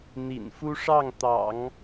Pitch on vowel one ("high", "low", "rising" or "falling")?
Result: low